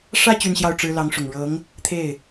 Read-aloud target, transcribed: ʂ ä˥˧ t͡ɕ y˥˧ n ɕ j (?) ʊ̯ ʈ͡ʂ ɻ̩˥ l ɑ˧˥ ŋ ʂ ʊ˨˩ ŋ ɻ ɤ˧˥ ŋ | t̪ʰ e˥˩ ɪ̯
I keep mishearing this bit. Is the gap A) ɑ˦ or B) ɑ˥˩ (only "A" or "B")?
B